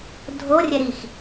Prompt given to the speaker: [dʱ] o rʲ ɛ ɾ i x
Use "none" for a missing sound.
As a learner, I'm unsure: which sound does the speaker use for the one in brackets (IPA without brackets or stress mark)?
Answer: dʱ